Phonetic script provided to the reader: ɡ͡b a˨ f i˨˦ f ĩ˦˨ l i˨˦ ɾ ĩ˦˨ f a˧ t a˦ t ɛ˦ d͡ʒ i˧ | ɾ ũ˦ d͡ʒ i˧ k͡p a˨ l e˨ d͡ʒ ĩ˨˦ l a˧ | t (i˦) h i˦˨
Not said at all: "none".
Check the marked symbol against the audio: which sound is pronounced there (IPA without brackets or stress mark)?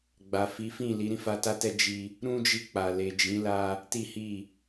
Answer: i˦